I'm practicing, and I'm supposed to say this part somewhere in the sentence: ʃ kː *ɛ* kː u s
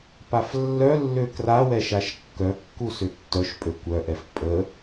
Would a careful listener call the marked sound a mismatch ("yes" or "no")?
yes